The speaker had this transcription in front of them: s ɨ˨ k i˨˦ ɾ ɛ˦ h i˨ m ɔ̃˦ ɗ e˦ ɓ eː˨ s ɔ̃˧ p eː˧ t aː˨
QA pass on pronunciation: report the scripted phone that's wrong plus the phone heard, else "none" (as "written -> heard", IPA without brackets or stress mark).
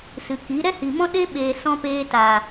none